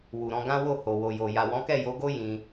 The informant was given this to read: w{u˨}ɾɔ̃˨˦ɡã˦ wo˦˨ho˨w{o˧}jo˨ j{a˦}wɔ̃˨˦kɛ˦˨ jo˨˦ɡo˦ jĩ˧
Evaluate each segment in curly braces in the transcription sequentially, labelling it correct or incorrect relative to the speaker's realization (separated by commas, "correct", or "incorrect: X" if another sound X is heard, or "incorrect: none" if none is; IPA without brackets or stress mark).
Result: correct, incorrect: o˨, incorrect: a˨